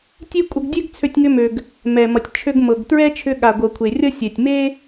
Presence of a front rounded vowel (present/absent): present